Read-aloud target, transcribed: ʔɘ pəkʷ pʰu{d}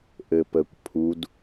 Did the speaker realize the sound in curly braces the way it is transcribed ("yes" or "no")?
yes